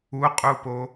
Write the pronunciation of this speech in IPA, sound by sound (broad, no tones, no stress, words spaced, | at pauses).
uqʼupo